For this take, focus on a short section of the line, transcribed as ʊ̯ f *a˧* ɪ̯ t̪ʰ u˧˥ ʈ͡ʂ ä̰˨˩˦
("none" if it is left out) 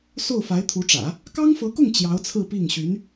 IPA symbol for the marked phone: a˧˥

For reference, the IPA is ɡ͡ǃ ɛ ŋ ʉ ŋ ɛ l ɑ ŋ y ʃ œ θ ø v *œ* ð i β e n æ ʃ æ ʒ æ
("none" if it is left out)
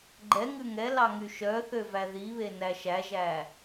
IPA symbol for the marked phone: æ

